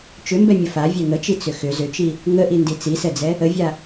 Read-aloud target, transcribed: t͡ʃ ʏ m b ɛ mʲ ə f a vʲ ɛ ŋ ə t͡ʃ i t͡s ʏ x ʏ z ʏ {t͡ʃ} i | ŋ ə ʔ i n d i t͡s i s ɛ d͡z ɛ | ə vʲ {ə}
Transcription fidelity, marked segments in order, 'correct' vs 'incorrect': correct, incorrect: a

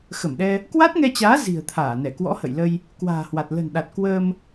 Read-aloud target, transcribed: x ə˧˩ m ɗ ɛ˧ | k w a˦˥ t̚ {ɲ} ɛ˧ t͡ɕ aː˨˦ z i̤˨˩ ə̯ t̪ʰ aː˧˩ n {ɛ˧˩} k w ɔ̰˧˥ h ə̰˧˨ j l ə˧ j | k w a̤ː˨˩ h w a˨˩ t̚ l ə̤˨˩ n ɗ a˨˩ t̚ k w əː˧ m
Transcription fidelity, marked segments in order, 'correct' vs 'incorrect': incorrect: ŋ, correct

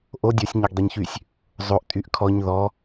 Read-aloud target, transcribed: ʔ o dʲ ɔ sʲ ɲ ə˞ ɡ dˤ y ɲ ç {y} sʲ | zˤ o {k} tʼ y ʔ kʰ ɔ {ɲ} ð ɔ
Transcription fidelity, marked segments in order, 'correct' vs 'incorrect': correct, incorrect: ʔ, correct

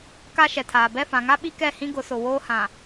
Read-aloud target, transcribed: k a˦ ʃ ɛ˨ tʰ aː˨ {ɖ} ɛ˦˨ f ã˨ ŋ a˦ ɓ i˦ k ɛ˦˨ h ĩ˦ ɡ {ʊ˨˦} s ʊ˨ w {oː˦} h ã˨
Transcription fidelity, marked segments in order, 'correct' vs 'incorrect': incorrect: b, correct, correct

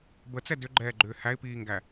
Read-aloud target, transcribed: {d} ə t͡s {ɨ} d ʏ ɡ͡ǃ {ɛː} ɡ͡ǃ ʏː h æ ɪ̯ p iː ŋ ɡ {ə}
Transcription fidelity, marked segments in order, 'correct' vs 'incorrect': incorrect: b, incorrect: ɛ, correct, incorrect: æ

